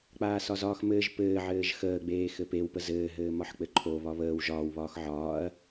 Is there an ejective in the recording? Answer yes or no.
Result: no